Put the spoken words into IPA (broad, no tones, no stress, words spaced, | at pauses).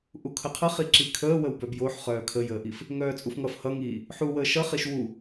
ʔukʰəqʰʌχi ǁikʰəː wəwbœbjoħ χœːkʰəjəːʔif | ŋœːt͡sʼufŋʌf hʌŋiː | ħuwəː ʃʌχiʃ wu